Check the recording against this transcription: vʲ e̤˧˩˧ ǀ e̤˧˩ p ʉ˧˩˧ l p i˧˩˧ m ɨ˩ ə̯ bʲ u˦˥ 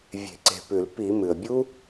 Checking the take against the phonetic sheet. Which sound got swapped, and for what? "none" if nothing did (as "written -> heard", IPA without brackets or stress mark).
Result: none